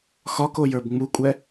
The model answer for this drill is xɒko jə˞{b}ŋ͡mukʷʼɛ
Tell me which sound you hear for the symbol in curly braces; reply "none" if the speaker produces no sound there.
b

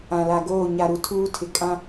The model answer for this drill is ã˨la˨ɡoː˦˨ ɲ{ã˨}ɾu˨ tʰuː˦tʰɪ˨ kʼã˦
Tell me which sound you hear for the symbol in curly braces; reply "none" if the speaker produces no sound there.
a˨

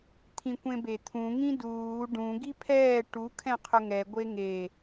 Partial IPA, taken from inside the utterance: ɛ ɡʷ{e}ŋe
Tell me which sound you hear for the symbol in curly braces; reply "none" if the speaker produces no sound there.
e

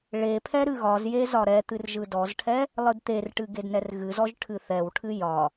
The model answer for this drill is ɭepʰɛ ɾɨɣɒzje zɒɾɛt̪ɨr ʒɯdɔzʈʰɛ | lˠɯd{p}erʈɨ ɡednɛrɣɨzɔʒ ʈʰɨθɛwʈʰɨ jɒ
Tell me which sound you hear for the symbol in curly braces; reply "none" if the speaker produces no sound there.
t̪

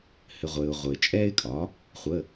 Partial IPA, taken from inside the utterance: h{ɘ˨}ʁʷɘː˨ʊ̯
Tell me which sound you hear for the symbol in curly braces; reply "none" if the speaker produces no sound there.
ɘ˨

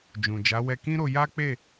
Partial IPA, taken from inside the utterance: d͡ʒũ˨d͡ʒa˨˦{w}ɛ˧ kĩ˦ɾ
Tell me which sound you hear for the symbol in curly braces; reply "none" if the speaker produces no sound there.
w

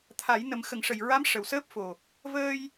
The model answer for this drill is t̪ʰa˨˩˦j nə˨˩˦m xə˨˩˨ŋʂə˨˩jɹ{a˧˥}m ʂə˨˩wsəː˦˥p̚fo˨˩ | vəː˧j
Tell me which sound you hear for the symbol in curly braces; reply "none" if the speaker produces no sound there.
a˧˥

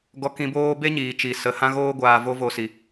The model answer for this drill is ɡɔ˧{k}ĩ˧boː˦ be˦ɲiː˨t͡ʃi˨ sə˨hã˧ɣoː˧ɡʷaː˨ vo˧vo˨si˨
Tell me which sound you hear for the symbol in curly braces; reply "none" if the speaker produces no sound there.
k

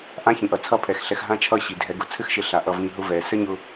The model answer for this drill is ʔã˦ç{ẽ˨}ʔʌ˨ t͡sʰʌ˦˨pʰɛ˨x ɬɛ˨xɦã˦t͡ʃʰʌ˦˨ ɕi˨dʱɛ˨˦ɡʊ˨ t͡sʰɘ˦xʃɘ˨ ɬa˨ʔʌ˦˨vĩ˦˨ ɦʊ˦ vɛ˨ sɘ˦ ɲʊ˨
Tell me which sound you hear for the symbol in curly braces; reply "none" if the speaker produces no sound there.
ĩ˨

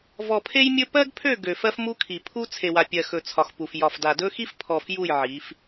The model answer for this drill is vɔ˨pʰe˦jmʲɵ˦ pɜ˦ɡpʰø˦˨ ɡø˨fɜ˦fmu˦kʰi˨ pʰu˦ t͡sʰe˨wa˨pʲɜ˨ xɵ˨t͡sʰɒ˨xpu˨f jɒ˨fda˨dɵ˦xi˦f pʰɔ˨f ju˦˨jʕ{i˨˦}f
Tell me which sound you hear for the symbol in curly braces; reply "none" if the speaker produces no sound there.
i˨˦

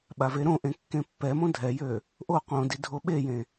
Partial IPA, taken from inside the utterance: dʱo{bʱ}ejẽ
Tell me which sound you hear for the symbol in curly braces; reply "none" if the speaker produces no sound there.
ɓ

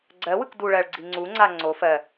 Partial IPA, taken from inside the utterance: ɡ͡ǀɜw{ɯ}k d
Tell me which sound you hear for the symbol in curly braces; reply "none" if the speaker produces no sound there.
ɯ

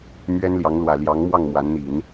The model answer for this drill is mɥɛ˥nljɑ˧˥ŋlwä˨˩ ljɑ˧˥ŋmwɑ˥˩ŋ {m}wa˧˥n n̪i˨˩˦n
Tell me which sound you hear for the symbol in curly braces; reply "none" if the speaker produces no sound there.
m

